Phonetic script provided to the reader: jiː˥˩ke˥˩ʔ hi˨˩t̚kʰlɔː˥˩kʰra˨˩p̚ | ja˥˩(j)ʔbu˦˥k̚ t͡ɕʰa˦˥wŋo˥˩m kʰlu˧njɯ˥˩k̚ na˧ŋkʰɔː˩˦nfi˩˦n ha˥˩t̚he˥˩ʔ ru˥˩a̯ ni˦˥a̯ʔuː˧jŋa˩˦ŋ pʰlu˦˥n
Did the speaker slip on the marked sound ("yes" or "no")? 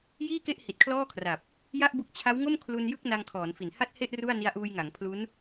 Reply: yes